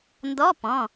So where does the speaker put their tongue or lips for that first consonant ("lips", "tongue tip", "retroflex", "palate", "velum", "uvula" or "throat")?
tongue tip